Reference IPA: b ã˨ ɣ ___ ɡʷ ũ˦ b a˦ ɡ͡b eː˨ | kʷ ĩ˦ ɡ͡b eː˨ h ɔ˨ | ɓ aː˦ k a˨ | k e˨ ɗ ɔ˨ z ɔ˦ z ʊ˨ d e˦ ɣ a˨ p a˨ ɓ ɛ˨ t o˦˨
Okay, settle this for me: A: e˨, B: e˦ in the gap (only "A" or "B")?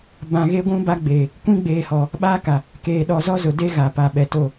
B